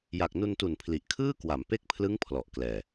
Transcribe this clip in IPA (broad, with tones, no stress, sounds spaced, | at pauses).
j a˨˩ k̚ n u˧ n t u˨˩ n pʰ l i˨˩ ʔ kʰ ɯː˥˩ k w a˩˦ m p e˥˩ k̚ pʰ l ɯ˦˥ ŋ pʰ l ɔ˨˩ ʔ k l ɛː˨˩